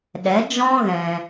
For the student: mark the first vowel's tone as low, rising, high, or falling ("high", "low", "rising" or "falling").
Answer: rising